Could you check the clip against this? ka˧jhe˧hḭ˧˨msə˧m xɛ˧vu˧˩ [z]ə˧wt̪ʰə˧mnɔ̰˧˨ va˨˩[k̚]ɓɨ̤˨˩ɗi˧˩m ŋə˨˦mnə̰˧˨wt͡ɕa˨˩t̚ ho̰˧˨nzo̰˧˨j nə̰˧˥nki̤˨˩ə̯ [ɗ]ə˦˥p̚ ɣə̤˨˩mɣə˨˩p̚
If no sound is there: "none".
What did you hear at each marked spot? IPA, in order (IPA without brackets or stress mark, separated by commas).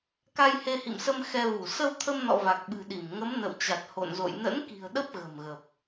s, k̚, ɗ